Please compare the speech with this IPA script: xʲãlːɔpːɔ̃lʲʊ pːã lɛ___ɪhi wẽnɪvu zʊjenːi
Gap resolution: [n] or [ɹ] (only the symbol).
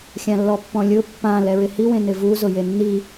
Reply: ɹ